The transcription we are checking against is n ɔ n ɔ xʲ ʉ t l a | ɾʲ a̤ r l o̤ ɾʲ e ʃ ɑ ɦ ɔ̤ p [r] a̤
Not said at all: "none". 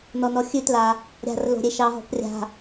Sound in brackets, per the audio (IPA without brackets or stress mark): rʲ